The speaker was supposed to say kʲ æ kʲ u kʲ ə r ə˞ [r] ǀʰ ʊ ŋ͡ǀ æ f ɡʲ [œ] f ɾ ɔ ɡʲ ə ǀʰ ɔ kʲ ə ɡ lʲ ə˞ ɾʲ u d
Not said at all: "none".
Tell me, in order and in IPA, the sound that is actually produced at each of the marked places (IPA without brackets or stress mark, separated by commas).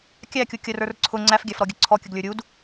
r, æ